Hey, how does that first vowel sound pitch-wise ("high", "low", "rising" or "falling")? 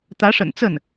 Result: rising